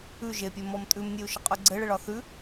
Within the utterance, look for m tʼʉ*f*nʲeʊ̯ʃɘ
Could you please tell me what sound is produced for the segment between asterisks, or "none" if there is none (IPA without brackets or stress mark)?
m